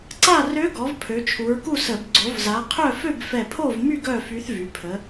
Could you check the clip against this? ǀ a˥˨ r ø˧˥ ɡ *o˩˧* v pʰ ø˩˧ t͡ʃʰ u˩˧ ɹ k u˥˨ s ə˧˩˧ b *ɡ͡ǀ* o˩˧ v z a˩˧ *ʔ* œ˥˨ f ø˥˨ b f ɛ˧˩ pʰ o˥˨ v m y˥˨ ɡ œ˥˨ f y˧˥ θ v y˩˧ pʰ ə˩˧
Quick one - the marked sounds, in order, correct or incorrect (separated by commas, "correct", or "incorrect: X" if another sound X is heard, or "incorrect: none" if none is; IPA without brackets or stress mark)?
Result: incorrect: ɔ˩˧, correct, incorrect: qʰ